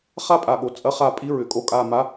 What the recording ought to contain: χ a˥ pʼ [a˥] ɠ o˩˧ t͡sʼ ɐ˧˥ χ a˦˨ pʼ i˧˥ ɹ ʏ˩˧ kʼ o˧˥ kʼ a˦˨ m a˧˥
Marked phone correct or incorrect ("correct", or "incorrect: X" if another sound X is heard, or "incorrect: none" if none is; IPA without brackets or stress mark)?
incorrect: a˨˩